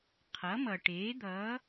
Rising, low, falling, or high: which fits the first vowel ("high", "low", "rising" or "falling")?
rising